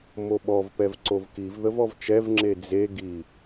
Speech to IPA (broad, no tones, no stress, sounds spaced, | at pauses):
m o ɓ ɔ v p ɛ v ǀ o v k i v ð ə v ɔ v t͡ʃ ɛ v ŋ͡ǁ e d͡z e ɡ i